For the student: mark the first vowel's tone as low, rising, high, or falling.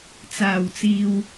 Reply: low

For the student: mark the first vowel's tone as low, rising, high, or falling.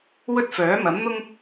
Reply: high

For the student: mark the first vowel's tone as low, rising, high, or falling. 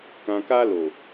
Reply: low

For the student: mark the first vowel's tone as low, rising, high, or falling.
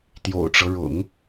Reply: low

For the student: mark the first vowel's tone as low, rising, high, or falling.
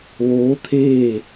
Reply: rising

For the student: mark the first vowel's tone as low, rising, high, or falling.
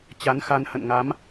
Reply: rising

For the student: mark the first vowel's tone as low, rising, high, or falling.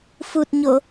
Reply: low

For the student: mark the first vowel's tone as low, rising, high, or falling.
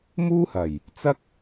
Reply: high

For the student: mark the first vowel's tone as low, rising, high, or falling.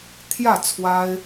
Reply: falling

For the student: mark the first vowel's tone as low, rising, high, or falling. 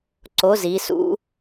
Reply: rising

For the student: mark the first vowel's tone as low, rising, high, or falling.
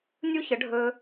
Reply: high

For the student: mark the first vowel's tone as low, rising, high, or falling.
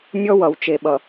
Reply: high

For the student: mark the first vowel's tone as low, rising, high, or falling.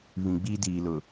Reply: low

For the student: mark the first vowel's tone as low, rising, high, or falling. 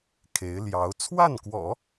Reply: rising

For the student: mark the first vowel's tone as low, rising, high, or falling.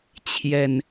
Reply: low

